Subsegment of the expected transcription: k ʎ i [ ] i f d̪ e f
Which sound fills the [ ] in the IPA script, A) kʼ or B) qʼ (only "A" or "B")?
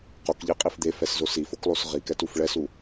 B